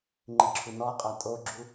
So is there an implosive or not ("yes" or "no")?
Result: no